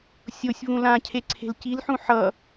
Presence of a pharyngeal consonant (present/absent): present